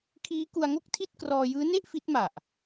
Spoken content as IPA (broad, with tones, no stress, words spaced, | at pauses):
kʰiː˦˥ku˧a̯ŋo˥˩k̚tʰi˥˩t̚ krɔː˧jɯː˦˥ne˥˩ʔ fi˦˥t̚ma˨˩ʔ